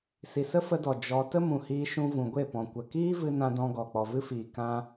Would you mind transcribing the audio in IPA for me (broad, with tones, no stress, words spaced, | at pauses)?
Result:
si˨sə˦fə˧dɔ˨ d͡ʒɔ˧ tə˦mũ˨hiː˧ ʃũ˧vũ˨ɡʷe˦˨pɔ̃˨ kʷə˨kiː˦vɨ˧nã˧ dɔ̃˧ɡɔ˨ k͡pɔ˨vɨ˦fiː˨ kã˧